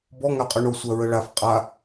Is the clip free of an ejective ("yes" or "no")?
no